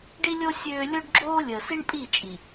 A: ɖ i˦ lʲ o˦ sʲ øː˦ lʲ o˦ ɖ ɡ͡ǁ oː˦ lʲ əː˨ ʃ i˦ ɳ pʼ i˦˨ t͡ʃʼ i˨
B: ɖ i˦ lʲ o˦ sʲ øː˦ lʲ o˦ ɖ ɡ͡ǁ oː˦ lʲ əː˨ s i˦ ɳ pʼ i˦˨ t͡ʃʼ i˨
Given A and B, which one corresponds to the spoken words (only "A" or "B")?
B